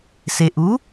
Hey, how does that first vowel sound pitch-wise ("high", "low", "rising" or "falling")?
low